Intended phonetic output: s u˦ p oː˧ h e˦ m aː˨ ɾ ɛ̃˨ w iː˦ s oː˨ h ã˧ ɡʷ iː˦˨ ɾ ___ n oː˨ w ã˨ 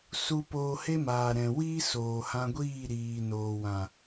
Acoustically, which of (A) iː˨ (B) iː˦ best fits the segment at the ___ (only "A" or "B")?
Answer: A